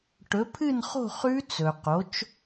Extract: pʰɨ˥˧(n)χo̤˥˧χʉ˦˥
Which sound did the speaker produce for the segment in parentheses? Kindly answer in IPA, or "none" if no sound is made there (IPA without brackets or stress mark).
n